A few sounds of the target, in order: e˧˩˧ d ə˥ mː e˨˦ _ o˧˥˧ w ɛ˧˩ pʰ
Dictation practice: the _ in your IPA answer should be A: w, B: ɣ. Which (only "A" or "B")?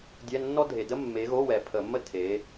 B